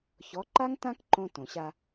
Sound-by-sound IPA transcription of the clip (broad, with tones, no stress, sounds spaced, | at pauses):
ç ɔ˩˥ ǃ a˥ ŋ t ã˥ k ǃ õ˧ t õ˩ ɕ a˧